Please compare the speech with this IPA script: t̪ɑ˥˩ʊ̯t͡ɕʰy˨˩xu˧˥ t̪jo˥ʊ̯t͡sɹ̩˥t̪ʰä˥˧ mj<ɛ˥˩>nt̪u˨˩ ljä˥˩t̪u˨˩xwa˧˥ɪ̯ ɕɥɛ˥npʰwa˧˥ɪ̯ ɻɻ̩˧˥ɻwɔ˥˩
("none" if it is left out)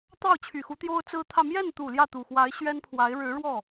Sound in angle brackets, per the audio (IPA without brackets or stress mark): ɛ˥˩